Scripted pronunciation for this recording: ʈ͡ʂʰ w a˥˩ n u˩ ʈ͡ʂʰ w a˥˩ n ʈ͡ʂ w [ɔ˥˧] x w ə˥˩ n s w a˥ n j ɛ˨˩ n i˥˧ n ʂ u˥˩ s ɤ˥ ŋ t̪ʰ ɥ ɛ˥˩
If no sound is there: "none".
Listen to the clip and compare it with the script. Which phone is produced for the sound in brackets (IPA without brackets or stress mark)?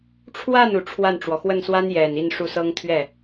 ɔ˩